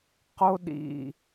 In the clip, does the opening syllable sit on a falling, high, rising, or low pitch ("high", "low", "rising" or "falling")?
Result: high